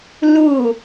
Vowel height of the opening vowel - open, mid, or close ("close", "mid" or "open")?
close